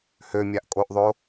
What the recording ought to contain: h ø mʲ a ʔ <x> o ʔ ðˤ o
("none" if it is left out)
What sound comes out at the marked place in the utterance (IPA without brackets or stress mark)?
kʼ